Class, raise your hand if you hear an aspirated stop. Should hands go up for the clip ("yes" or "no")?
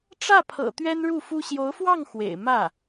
yes